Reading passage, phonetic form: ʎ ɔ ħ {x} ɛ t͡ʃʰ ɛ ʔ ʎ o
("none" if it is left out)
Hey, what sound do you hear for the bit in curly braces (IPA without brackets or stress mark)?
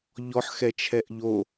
x